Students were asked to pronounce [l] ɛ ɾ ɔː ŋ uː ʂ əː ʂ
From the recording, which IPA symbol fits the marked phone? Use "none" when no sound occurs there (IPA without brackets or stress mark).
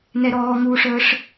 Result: n